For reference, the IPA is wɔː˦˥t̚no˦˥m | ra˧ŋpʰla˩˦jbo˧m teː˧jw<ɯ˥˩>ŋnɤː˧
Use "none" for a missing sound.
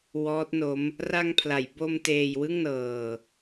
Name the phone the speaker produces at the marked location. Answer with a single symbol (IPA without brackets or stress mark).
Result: ɯ˥˩